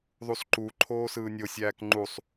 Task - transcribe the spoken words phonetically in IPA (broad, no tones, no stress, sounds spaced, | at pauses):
ðˤ u s ǃ u ǃʰ oː s ɯː nʲ o sʲ æː k ŋ͡ǃ u sˤ